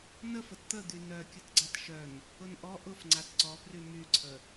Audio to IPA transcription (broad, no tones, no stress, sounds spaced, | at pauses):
n ə f ə t t̪ ə d̪ y n œ kʲ ʊ t ɡ͡ǀ a t ʃ œ n | ʊ n ʔ ɔ ʔ ʊ f ŋ͡ǀ a t ǀ ɔ p r y m y ǀʰ ə